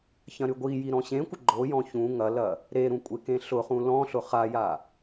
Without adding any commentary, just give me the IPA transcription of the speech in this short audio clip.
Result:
çɐ̃ɾyɡʷiji ɾɔ̃ɕẽkʷɪ ɡ͡ǃojɔ̃ çũ ŋɐlɐ | ɾeɾũ kʷʼekẽɬʊχũ lɔ̃ɬʊ χaja

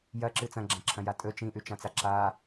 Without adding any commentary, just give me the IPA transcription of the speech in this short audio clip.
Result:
jɐǁɨ t͡sɐ̃ɡ͡ǁãǁʰɐ̃ja tʼɵ t͡ʃĩʔʉt͡ʃãt͡sa ǁa

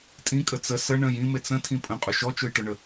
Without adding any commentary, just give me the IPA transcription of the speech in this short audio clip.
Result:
tʼĩkʼə t͡sə sə ɳə̃j ĩmet͡s ə̃tʰĩ pʼə̃qʼʊ ʃɔt͡ʃʊjʈʊɳə

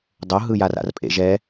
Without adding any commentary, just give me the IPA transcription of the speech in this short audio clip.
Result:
dˤoɦɯ jara̰rpʼḛ ʒɛ

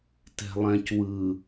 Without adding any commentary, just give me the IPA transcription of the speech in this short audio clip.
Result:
tɛ̤lˠɛ̃c wɯ

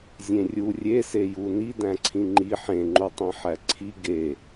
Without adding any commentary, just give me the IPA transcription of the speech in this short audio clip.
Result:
zʲẽrʲu rʲeseju nidæ̃ǀʰĩ ŋ͡ǃi ħẽŋ͡ǃutˤẽ ħæǀʰi ɡe

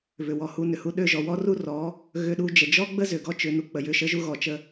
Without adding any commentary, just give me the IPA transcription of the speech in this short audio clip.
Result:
βʏ˨ wɔ˨hu˧nʏ˨ hu˧ɗø˦˨ʒɔ˨ wɔ˦ru˦rɔ˨˦ | ɣʏ˧ɗu˧ d͡ʒə˨d͡ʒɔ˦ɡ͡bə˦zʏ˨ ɡɔ˦t͡ʃʏ˨˦nu˧ k͡pə˨jʏ˧ ʃə˦ʒu˦ ɣɔ˨t͡ʃə˧

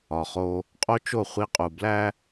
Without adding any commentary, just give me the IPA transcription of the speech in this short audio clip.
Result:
ɒ˨χo˦ | qʼo˦t͡ʃo˦˨ χʷi˦qʼu˨ blæ˦

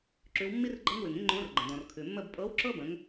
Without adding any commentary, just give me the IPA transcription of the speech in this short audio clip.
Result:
ǁʉ˩˧wmːi˦r ɡ͡ǃɤ˦ŋwʉ˩ŋĩ˦ ŋ͡ǃõ˨˥rɡ͡ǃə̃˩ dɔ̃˩rkʰʉ˩mːə˥˨b pʼɤ˨˥wǁɤ˦bə̃˩˧ŋ

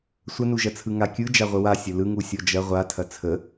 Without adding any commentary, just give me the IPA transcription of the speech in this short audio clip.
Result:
sʷənuʒɐt͡sʰɯ ŋakʲɯ d͡ʒaʁʷəwa sʲəlɯŋu sʲɔd͡ʒɐ ʁʷatʰɐ t͡sʰə

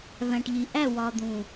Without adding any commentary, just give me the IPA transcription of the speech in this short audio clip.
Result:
væ̃˨ʈʎi˨ʔæ˦˨ wɒ˨d̪ũ˨

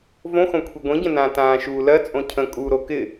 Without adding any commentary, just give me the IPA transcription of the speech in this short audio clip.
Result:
võxõ kʷʰiɡʷĩɟə̃nãː tãːʃuːlɜ t͡sʼõcʰə̃ kʼuːɾokɪ

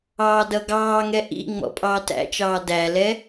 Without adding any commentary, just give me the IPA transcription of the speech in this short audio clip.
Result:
ɑːdʌɡɑːŋɛ ʔḭ ŋ͡mɔ̰pʼɑːtæ̰t͡ʃɑː dælɛ

